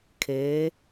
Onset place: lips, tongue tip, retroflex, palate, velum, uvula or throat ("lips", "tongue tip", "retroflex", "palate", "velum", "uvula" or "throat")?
velum